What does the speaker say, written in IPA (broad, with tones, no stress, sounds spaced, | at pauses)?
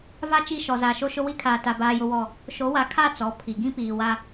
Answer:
v a˦˨ t͡ʃ i˦˨ ʃ ɔ˨ z aː˨ ʃ o˦ ʃ ʊ˦ w i˦ kʰ aː˨ t a˨ b aː˦ j ʊ˦ w ɔ˦˨ | ʃ o˨˦ w a˨˦ kʰ a˦˨ t͡s ɔ˨˦ pʰ i˨ ɡ ĩ˦ p iː˨ w a˦